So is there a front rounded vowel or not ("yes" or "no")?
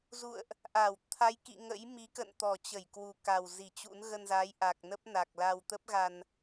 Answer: no